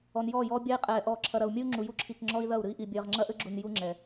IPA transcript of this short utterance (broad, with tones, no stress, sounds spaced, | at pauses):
ɔ˨ n j ɔː˦˨ j ɔː˦ bʲ a˦ i̯ qʼ ɛː˨ ʔ ɔː˨ ǁʰ ɐ˨ ɾ ɐ˨ u̯ mʲ ɘ˦ u̯ ŋ͡ǁ u˨ j u˦ ǁʰ i˨ k ŋ͡ǁ ɔ˦ i̯ ð ɐ˦˨ u̯ ɾ ɨ˦ i̯ ʔ i˨ bʲ ɐː˨ ʁ ŋ͡ǁ ɐ˦ ʔ ɘ˦ ɡ͡ǁ u˨ n j u˦ ŋ͡ǁ ɛ˨